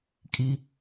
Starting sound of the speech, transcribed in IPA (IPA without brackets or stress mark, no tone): kʼ